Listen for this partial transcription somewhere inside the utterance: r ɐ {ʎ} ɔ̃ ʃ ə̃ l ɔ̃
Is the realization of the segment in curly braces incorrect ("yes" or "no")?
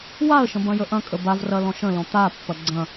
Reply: yes